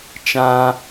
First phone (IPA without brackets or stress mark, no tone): t͡ʃ